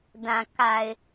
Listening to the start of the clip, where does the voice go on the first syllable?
low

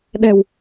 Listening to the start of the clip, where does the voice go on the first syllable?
low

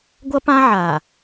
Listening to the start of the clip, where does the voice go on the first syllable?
high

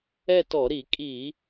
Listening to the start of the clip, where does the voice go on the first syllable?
falling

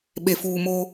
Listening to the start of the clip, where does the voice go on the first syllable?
low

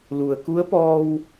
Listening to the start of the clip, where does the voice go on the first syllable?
low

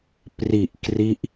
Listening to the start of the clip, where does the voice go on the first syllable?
low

